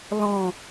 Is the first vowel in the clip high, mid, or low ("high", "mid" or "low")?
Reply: mid